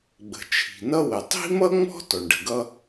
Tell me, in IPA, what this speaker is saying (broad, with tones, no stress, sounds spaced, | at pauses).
ɡ͡b ə̤˩ t͡ʃʰ i̤˩ n ʌ˥ w ə˩ tˤ i̤˥ m ʌ˥ ŋ͡m ɔ̤˥ t ɔ˩ ɳ ɖ ə̤˩ ɡ ʌ˥